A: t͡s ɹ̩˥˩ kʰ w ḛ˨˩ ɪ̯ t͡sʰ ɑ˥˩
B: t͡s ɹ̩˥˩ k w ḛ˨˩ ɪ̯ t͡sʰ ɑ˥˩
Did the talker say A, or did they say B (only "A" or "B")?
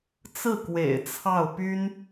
B